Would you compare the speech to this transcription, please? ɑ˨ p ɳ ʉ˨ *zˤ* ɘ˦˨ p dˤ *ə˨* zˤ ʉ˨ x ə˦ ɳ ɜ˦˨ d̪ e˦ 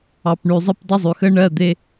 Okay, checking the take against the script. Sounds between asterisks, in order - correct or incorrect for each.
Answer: correct, incorrect

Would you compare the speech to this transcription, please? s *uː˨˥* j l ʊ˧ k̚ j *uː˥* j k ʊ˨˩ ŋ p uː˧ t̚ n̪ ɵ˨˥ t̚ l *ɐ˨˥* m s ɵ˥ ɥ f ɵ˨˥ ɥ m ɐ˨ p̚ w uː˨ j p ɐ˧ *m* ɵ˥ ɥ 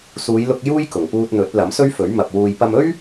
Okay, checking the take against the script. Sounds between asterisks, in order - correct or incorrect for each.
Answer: incorrect, correct, correct, correct

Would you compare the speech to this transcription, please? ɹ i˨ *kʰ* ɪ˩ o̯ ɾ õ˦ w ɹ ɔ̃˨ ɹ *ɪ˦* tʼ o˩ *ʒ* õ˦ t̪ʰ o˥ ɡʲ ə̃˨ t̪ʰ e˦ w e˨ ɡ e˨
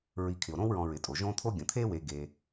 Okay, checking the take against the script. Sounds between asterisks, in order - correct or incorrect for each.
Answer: correct, incorrect, correct

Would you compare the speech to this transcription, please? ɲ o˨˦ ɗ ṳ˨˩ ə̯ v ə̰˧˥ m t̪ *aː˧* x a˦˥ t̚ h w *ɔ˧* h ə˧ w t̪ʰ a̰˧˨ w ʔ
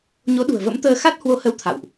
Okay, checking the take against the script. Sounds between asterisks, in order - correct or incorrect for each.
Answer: incorrect, incorrect

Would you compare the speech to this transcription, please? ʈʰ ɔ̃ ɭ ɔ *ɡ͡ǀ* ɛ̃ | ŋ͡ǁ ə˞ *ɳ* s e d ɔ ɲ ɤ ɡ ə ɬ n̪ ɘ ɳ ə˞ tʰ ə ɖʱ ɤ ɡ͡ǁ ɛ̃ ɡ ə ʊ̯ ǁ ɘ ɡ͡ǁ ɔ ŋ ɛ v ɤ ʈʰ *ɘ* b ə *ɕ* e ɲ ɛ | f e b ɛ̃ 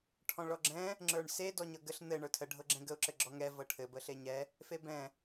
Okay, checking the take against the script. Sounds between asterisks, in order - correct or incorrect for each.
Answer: incorrect, correct, correct, incorrect

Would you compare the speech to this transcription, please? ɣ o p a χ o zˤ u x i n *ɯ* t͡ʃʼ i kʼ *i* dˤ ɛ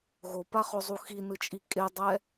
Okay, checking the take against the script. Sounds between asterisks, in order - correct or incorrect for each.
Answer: correct, incorrect

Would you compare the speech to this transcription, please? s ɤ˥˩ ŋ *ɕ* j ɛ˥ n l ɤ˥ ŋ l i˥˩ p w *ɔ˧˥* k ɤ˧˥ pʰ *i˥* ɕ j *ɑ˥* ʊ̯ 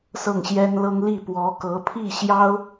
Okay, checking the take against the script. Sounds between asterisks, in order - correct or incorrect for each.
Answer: correct, correct, incorrect, correct

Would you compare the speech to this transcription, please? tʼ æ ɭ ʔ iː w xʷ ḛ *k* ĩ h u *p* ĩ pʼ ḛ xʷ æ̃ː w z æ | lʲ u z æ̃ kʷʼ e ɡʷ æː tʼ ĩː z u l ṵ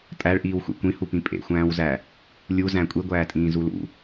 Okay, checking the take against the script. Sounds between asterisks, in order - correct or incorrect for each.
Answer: incorrect, correct

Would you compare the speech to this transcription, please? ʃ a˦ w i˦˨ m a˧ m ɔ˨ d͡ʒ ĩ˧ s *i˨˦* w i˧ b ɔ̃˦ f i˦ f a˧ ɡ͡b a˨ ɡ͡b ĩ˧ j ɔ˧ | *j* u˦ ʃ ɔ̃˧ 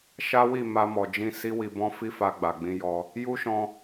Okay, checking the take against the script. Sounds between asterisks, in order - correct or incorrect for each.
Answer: incorrect, correct

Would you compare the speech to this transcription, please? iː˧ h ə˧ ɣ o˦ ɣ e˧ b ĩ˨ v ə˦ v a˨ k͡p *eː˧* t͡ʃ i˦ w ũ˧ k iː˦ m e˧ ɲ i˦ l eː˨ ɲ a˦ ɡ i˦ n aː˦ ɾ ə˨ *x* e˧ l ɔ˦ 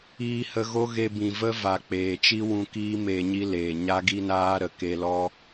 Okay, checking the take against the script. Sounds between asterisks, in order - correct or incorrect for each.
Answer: incorrect, incorrect

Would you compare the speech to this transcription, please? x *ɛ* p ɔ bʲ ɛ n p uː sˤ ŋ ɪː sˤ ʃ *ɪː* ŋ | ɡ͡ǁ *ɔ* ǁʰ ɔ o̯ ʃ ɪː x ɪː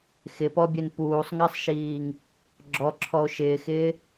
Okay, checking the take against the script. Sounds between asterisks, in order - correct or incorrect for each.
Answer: incorrect, incorrect, correct

